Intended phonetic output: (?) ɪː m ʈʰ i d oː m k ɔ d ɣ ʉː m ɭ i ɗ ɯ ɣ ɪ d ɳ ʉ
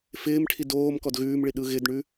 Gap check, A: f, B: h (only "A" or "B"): A